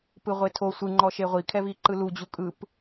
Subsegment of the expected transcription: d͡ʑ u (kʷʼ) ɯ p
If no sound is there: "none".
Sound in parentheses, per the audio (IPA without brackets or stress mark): kʼ